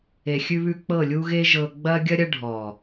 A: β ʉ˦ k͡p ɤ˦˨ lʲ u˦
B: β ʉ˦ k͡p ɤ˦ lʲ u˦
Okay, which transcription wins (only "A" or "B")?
A